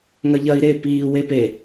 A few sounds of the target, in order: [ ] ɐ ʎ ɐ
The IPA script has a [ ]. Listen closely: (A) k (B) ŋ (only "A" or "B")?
B